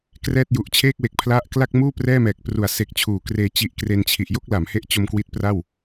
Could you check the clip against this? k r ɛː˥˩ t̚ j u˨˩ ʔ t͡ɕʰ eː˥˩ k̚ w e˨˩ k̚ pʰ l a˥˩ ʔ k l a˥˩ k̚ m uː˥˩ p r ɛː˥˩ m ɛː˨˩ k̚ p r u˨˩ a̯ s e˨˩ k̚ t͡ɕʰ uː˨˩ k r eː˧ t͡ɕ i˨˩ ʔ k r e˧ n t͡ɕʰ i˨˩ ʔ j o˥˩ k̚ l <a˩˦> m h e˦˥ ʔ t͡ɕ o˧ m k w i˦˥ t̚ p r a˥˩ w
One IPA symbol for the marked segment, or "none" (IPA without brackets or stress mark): a˩˦